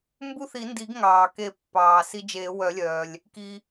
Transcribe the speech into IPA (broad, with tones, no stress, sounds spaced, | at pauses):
m b u˦ θ i˨˩˦ n d i˨˩˦ ɡ ŋ ɑː˩ k e˨˩˦ pː ɑː˩ s i˦ d͡ʒ eː˨˩˦ w œ˨˩˦ lʲ œː˩ lʲ | k i˩